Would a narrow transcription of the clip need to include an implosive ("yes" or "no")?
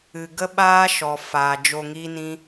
yes